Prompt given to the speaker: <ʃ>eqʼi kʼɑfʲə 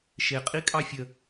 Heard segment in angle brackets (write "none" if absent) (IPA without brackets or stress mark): ʃ